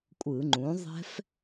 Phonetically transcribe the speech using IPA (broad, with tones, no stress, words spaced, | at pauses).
kʷʼɯ˧˩˧ŋ͡ǃũ˩˥ ðˤɛ̤˦˥f